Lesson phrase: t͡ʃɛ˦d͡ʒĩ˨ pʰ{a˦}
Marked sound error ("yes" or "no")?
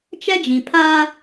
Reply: yes